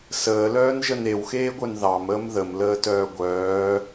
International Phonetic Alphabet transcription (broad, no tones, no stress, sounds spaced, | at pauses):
s əː l œː n ʒ ə n e w x eː ɡʷ œ n ð ɑ m əː m ð ə m l əː t œː ɡʷ œː